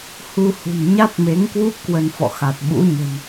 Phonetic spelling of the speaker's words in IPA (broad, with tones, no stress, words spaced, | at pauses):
hu˧hṳ˨˩n ɲa˦˥t̚me˨˦ŋkwu˦˥p̚ kwə˧nfɔ̰˧˨xa˨˩t̚ ɓṵ˧˥ɲə̤˨˩n